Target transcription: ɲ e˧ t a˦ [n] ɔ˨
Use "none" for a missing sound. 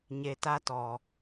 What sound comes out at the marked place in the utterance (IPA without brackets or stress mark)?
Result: t